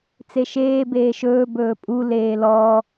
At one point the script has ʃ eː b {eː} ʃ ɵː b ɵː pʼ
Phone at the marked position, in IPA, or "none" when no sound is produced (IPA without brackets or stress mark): eː